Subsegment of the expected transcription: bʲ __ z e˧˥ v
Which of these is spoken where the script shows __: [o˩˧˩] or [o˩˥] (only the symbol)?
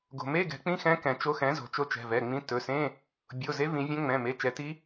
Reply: o˩˧˩